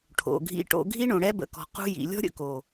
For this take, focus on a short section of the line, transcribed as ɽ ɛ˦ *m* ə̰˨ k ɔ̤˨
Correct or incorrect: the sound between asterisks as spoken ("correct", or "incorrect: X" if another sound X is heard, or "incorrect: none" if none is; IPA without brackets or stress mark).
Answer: incorrect: b